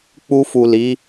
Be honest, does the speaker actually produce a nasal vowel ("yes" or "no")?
no